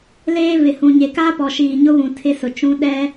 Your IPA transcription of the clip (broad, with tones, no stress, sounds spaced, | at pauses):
l eː˦ v ɪ˨ h ũ˨ ɲ e˨ k aː˦ p ɔ˨ ʃ iː˨ ɲ ʊ˦ β ũ˨ tʰ ɪ˦ s ʊ˨ t͡ʃ ũ˦ ɗ ɛ˦